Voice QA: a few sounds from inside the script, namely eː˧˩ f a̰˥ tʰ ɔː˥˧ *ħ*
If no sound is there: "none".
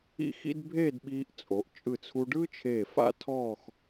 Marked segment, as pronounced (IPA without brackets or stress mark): x